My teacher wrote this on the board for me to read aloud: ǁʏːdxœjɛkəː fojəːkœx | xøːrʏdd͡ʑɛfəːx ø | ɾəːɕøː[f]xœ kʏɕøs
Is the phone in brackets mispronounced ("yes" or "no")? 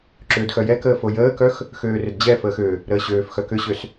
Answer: no